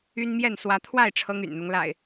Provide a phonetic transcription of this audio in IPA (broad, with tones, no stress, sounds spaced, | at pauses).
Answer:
y˦ n m j ɛ˥˨ n s w ä˨˦ t̪ʰ w a˥˨ ɪ̯ ʈ͡ʂʰ ɤ˦ ŋ y̰˨˩ n n̪ ʊ˦ ŋ l a̰˨˩ ɪ̯